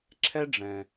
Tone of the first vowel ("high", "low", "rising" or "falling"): high